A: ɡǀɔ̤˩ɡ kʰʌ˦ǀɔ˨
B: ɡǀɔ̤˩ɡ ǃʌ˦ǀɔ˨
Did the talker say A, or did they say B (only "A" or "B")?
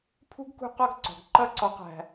B